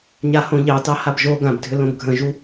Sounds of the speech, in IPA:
ɲ a h õ ʎ ɑ t ɑ h a b ʒ o ɡ ã b dʱ ʏ l õ b ɡʱ ə̃ ʒ u

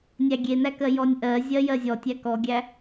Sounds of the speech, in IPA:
nʲ æ ɡʲ e n æ k ɜ j ɔ nʲ ʔ ɜ zʲ ɜ j ɜ zʲ ɔ tʲ æ k ɔ ɡʲ æ

